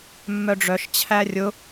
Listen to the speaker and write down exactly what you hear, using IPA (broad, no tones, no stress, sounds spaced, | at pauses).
mː œ ɖ͡ʐ œ ʃ t͡ɕʰ æ rʲ ʊ